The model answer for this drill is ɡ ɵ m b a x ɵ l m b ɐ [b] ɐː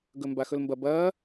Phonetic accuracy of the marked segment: correct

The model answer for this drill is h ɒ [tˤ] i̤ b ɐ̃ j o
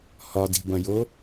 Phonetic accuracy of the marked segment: incorrect: d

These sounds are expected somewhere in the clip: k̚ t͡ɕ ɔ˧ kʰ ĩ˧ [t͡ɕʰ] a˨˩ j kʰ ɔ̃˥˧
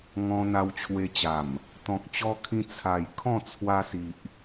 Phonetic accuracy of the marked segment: incorrect: t͡sʰ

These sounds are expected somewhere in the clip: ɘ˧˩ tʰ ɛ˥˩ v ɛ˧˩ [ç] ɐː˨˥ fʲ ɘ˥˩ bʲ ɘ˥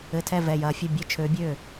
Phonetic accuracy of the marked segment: incorrect: j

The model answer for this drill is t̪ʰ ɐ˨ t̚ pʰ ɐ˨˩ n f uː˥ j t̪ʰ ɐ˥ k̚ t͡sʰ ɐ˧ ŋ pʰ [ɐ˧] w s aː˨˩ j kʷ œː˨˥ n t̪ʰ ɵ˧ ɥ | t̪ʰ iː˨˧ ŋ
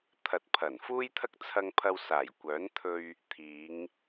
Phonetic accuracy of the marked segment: correct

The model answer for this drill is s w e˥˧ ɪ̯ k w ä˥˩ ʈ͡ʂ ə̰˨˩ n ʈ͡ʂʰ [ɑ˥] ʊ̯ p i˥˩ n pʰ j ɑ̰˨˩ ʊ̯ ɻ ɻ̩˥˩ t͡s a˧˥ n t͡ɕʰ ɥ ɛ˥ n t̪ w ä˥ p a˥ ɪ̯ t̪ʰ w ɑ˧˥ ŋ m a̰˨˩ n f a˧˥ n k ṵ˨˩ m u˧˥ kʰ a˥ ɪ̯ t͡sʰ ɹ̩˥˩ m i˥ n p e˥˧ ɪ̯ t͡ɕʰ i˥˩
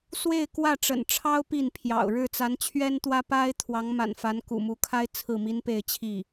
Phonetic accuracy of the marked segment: correct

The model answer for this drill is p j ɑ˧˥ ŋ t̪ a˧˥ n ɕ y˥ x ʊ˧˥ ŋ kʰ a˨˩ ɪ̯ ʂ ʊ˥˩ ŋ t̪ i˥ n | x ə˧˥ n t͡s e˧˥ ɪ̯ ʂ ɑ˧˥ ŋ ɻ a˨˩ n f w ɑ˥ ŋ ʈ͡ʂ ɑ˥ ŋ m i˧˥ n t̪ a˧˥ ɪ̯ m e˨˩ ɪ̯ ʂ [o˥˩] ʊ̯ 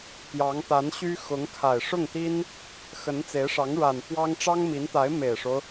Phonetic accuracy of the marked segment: incorrect: o˦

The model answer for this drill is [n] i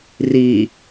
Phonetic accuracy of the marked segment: incorrect: r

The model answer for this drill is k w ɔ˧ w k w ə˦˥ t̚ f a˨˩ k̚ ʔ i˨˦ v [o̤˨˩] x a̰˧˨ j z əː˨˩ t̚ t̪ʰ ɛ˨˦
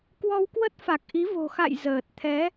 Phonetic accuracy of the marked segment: correct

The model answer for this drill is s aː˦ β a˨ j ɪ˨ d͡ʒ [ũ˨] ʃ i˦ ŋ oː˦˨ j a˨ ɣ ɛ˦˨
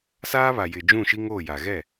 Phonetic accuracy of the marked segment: incorrect: ũ˦˨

